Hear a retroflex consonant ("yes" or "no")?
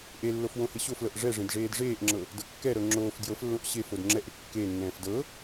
yes